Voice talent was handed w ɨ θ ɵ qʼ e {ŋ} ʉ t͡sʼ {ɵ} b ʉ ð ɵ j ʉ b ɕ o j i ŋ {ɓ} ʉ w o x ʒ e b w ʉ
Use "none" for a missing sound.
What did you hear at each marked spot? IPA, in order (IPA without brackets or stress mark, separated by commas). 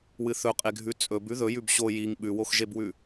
ɡʱ, ɵ, ɓ